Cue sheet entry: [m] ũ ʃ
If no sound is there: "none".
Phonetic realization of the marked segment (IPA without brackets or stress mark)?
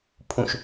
pʰ